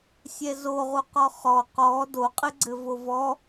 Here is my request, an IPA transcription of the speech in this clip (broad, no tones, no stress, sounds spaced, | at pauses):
sʲ ɛ z o ʁ u q ɔ χ ɔ q ɔ d o qʼ ɘ ɡ͡ǀ ɘ v o v ɔ